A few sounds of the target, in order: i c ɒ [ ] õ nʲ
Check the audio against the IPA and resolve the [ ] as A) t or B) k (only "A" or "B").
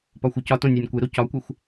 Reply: A